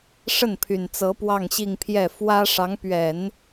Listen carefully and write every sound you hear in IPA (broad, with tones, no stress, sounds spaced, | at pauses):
ʂ ə˥˩ n pʰ y˨˩ n t͡s ɤ˧˥ p w ɑ˥˧ ŋ ɕ i˥˧ ŋ pʰ j ɛ˥˩ f w ä˥ ʂ ɑ˧˥ ŋ p ɥ ɛ˨˩˦ n